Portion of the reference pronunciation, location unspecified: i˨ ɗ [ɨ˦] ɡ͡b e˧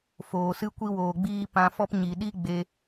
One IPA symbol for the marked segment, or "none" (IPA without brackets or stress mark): i˦